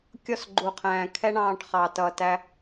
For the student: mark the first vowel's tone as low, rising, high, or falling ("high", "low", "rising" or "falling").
falling